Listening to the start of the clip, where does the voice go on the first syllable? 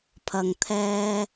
low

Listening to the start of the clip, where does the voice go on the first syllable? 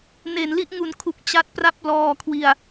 low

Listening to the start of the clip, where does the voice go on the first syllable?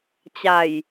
low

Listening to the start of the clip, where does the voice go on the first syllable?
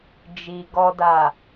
low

